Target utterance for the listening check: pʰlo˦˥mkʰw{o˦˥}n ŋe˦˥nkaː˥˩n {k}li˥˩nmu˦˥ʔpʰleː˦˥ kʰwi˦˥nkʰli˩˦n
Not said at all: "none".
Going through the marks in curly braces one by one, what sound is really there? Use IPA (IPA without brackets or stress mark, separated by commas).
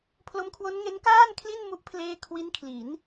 o˦˥, kʰ